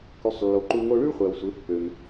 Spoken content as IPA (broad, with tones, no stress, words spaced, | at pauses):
ky˩˧sˤlːo˩ ǃu˧ ŋo˧ɭy˥ɭχʷæ˩wsʷe˩˧ pːø˩m